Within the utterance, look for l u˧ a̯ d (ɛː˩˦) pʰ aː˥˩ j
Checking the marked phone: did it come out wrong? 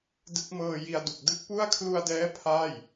yes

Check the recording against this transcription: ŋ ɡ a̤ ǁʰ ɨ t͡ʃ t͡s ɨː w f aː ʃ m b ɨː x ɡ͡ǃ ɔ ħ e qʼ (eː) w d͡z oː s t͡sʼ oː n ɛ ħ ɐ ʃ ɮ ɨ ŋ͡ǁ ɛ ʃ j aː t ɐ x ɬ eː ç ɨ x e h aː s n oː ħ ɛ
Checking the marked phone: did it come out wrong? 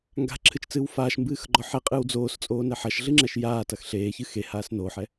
yes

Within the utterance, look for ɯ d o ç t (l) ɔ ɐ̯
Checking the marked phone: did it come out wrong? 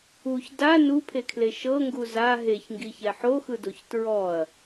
yes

